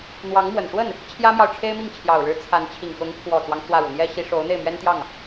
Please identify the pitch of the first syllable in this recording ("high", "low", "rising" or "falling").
rising